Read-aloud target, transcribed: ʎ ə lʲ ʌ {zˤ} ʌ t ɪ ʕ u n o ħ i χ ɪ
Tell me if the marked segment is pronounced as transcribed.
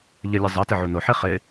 yes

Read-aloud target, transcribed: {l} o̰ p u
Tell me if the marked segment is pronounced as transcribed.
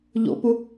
no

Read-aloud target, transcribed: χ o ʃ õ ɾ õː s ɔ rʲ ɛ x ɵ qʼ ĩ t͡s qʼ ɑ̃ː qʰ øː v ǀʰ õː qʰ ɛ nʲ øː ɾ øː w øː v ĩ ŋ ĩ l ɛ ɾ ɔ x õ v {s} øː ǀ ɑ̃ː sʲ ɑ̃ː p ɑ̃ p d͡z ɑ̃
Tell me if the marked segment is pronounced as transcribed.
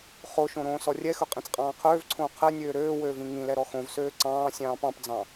yes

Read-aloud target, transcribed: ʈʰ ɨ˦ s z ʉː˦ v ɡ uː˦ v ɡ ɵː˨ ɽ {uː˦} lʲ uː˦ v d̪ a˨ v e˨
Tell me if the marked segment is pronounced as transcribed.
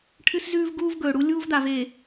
no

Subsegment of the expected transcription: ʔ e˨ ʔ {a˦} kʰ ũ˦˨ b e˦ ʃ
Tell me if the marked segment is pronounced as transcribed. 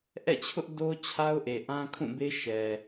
no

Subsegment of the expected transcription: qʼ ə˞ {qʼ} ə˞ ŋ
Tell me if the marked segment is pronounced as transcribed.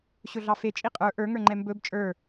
no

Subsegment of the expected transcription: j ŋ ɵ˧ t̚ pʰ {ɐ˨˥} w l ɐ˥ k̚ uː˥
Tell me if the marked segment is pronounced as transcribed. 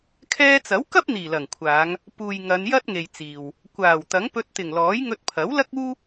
yes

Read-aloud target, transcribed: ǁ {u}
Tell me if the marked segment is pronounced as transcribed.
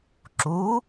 yes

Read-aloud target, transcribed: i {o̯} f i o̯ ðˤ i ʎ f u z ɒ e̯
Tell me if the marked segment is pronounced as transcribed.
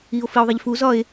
yes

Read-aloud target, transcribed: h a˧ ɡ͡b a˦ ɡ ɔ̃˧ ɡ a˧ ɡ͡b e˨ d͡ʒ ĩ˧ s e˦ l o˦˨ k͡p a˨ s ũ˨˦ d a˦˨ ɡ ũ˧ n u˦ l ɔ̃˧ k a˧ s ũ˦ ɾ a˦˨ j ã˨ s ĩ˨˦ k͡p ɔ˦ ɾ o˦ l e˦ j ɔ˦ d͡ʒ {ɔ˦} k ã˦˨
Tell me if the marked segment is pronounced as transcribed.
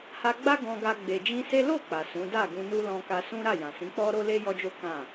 no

